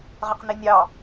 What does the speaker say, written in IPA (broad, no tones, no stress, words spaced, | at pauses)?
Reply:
ʁəqninʲɑ